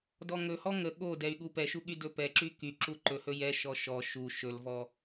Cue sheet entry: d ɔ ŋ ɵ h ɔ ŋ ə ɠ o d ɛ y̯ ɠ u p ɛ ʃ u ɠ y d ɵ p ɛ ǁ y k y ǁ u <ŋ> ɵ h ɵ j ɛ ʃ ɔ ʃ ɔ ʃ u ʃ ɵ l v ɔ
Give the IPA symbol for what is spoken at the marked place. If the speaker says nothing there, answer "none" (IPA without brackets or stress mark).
ǃ